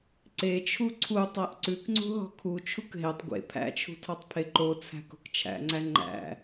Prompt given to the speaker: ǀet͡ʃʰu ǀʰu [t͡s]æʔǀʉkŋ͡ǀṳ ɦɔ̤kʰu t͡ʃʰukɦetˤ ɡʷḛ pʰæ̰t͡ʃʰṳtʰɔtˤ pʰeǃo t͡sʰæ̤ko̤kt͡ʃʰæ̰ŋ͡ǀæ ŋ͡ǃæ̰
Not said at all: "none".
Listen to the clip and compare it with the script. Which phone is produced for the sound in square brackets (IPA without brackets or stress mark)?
tˤ